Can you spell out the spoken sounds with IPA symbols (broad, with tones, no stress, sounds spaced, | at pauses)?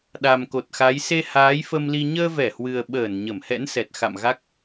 ɗ a˨˩ m k o˨˩ t̚ x a˨˦ j s e˧ h aː˨˦ j f ə˧ m l i˧ ɲ əː˧ v ɛ˧˩ h w ɨ˨˩ ə̯ ɓ əː˧˩ n ɲ ə˧˩ m h ɛ̰˧˥ n s ɛ˨˩ t̚ x a̰˧˨ m ɣ a˦˥ k̚